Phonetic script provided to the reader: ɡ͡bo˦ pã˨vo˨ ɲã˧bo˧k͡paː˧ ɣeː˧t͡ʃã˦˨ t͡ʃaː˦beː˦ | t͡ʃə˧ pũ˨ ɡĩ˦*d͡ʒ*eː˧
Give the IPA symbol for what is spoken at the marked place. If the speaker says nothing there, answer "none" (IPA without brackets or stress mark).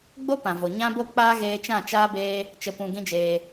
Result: d͡ʒ